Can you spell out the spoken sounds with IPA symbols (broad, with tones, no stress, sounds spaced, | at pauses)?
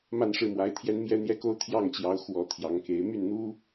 m a˥˧ n ʂ ɻ̩˥˩ m w a˧˥ ɪ̯ t̪ʰ j ɛ˥ n m j ɛ˥ n̪ j ɛ˥ k o˥ ʊ̯ t̪ʰ j ɑ˥˩ ŋ t͡ɕ j ɑ˧˥ ʊ̯ x w ɔ˨˩ t̪ʰ j ɑ˧˥ ŋ k e˧˥ ɪ̯ m y˥˩ n n̪ u˥